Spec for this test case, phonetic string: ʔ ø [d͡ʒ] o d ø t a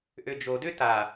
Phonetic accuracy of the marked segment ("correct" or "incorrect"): correct